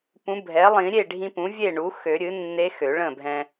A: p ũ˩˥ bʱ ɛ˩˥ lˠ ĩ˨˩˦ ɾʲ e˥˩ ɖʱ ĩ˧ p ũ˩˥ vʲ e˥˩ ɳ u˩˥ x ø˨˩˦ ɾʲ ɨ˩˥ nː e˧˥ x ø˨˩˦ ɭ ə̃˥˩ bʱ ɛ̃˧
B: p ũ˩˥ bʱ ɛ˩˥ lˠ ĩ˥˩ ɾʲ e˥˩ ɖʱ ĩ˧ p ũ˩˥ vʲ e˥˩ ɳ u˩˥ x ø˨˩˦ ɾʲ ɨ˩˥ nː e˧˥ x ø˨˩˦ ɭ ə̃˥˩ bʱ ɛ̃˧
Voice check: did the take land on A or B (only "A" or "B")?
A